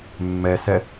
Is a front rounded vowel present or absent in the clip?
absent